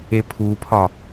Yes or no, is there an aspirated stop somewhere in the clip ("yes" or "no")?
yes